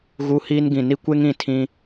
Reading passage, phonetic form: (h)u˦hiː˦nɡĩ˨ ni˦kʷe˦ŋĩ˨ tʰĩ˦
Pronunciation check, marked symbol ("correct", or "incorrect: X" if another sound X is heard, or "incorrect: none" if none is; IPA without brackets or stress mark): incorrect: ɣ